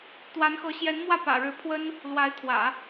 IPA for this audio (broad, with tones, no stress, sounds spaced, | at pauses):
t̪ w a˧˥ n x ɤ˧˥ ɕ j ɛ˧˥ n m w ä˥˩ p ä̰˨˩ ɻ ɻ̩˧˥ pʰ w ə˥ n | l w a˧˥ ɪ̯ t̪ʰ w ä̰˨˩˦